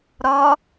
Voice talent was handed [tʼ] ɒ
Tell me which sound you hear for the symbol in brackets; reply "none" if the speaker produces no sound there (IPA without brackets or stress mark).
ɾ